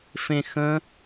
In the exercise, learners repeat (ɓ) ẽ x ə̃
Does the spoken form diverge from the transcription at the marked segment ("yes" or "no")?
yes